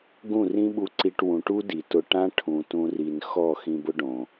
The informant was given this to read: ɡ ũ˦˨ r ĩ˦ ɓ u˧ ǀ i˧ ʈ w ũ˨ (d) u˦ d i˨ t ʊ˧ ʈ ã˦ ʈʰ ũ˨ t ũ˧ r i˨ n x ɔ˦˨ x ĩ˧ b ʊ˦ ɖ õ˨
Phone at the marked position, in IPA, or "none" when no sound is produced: ʈ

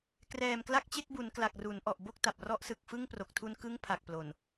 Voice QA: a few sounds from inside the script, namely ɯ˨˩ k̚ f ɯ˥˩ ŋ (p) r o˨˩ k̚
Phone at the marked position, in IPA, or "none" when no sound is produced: p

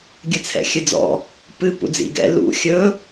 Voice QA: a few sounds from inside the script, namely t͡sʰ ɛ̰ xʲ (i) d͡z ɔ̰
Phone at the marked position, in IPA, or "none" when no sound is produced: ɨ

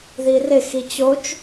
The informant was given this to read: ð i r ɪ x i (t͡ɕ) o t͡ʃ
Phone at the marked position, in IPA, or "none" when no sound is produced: t͡ɕ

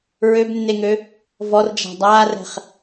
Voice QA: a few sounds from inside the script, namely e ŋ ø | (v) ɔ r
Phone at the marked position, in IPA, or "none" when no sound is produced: v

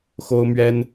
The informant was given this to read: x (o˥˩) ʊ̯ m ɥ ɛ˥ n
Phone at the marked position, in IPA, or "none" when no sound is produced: o˥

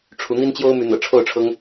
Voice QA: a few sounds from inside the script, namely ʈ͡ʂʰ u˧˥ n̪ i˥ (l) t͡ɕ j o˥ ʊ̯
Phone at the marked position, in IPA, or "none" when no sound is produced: n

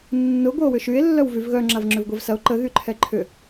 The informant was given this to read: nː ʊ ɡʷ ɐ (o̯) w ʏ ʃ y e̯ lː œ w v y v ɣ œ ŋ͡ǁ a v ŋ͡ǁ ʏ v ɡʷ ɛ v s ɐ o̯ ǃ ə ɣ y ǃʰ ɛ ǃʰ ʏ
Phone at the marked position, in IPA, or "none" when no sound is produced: o̯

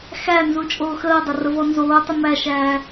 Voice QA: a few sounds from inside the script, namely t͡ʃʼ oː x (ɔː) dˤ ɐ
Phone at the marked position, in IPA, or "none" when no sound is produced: əː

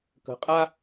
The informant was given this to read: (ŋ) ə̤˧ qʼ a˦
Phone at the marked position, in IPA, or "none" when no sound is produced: k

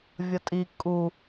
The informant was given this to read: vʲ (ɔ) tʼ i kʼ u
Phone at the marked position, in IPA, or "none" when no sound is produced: ʌ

